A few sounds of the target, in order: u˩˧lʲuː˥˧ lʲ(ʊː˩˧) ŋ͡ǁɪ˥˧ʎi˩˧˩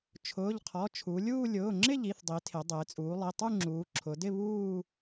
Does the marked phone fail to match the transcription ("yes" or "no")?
yes